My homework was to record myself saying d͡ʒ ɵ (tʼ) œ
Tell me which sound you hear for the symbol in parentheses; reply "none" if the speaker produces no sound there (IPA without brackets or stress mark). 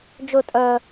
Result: tʼ